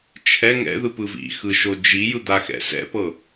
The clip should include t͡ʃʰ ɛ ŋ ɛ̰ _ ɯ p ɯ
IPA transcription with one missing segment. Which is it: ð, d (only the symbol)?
ð